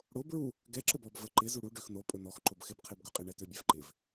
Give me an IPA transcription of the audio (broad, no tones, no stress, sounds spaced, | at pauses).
ɽ o b ɹ u | ɡ ɛ ǁ ə b ɔ b v ə ǃ ɪ z u ɽ u ɖ ø x n o pʼ ɵ n ɔ x ǃ o b x ɪ b qʰ e b ɡ ɵ qʼ ɪ ɳ ɛ t ø bʲ ɛ v ǃ ɪ v